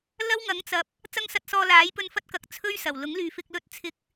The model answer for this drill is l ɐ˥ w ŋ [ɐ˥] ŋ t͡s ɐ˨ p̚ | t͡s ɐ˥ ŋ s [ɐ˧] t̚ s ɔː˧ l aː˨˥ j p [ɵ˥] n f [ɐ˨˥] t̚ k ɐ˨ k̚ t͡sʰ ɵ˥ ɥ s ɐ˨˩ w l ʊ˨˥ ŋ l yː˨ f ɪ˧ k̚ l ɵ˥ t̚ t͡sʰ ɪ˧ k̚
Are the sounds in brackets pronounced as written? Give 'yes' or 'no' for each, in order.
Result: no, yes, no, no

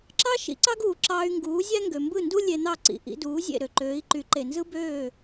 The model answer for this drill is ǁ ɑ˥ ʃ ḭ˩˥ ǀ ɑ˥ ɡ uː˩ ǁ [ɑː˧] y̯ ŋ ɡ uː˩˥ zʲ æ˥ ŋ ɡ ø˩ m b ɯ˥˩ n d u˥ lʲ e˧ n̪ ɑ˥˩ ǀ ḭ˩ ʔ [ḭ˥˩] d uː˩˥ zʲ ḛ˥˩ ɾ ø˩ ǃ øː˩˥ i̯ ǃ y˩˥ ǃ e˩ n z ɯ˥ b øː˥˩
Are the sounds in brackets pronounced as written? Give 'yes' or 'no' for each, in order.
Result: yes, no

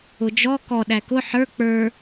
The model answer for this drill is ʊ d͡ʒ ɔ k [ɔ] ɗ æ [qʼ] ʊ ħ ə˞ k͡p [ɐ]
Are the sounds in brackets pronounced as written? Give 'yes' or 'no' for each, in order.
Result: yes, no, no

